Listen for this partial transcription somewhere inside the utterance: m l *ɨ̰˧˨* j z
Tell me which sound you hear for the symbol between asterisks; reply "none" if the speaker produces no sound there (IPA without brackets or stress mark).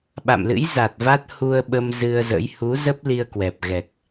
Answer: ɨ̰˧˥